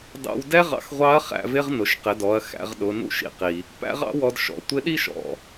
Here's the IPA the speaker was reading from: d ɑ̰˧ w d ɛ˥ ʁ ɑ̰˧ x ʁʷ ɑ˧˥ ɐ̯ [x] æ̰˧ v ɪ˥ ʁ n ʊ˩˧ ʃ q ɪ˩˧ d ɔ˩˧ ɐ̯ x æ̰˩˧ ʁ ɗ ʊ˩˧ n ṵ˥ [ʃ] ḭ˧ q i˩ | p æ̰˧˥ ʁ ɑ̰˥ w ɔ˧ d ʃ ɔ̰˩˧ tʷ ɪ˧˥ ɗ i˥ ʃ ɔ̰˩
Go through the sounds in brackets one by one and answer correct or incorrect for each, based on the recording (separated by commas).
incorrect, correct